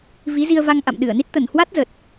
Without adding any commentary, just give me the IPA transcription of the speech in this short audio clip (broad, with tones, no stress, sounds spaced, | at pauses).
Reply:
v i˨˦ z i˧ ə̯ v a˧ ŋ ʔ a̰˧˨ m ɗ ɨ˧˩ ə̯ n i˦˥ t̚ t̪ ə˧˩ n h w a˦˥ t̚ z ə˨˩ t̚